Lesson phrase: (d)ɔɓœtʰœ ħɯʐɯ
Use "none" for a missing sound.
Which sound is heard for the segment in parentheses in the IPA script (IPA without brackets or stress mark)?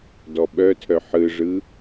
d